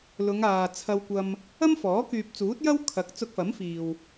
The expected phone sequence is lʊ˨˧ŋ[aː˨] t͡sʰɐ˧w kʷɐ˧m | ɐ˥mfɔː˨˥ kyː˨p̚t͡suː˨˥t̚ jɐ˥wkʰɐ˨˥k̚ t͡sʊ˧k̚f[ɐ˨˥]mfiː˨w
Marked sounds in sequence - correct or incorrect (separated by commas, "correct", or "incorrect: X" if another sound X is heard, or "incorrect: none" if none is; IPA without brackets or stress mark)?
correct, correct